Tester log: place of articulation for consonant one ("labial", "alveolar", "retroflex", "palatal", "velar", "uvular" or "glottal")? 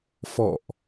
labial